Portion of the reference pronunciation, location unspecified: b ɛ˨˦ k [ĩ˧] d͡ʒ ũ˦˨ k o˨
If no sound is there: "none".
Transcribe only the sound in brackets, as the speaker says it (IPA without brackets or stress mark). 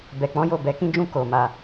ĩ˦